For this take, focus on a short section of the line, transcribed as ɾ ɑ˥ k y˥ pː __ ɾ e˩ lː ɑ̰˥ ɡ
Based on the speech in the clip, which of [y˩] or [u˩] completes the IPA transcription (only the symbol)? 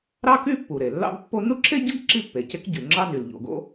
u˩